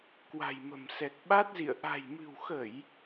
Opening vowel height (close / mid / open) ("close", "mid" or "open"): open